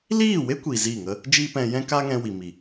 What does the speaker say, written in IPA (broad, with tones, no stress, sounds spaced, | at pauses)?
l iː˦˨ w e˦ kʷ iː˨ z iː˦˨ ŋ ə˦ | d͡ʒ iː˦ p ɛ̃˧ j ɛ̃˦ k aː˦ ŋ ɛ̃˧ w i˨ m i˨